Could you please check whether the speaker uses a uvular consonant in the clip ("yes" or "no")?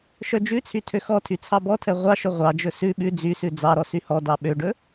yes